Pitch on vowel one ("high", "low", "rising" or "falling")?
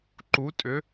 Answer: rising